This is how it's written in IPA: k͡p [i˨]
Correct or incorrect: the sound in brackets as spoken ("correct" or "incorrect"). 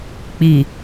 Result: correct